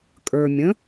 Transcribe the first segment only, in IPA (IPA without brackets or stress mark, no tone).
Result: kʼ